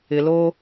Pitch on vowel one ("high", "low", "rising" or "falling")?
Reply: low